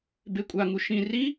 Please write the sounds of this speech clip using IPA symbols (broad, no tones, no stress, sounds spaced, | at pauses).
b e kʷʼ a ŋ u ʃ ĩ r i